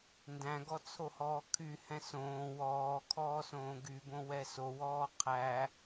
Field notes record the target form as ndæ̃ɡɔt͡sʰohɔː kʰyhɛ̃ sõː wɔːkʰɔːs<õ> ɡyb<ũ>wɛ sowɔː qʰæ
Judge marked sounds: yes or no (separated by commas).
no, no